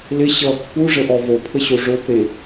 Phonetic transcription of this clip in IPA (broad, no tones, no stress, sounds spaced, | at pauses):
l ɪ ɕ ʌ kː u ʐ ə ʔ ɔ v o pʰ ə ɕ o ʐ o p ɾ e